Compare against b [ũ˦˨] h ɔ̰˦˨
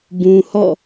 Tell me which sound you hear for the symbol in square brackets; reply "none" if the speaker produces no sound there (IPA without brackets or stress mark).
ũ˨